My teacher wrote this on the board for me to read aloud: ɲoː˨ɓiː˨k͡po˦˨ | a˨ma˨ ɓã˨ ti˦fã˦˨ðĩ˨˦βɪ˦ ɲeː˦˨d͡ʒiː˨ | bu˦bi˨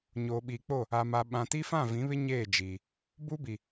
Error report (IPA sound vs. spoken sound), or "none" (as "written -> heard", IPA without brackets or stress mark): ð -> v